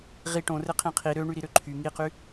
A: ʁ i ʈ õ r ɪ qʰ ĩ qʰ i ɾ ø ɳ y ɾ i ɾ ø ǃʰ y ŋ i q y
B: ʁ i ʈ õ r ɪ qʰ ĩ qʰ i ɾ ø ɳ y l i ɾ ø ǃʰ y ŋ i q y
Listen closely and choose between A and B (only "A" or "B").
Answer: A